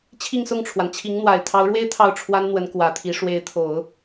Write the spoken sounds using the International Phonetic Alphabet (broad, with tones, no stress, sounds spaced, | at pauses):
t͡ɕʰ i˥˧ ŋ s ʊ˥˩ ŋ ʈ͡ʂʰ w a˩ n t͡ɕʰ i˧˥ ŋ n̪ w a˨˩ ɪ̯ t̪ʰ ɑ˧˥ ʊ̯ ɻ w e˥ ɪ̯ t̪ʰ ɑ˥˩ ʊ̯ ʈ͡ʂʰ w a˥ n n̪ w ə˧˥ n k w ä˧˥ t̪ʰ i˧˥ ʂ w e˧˥ ɪ̯ t̪ʰ o˨˩˦ ʊ̯